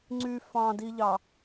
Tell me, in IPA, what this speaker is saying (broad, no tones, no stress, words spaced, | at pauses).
ŋ͡ǀy fɑ̃diʎɑ